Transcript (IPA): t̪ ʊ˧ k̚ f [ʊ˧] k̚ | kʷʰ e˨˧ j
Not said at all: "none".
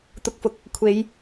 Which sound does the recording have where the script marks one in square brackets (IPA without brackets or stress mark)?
ʊ˨˥